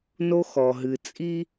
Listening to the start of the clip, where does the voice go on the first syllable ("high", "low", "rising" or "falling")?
high